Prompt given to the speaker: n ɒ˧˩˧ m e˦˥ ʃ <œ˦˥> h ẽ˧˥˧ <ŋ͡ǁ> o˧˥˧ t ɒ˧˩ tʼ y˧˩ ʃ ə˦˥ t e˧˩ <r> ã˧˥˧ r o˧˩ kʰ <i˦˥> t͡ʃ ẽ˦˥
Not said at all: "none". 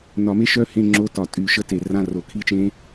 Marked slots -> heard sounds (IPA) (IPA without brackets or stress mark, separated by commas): œ˦˥, ŋ͡ǁ, r, i˦˥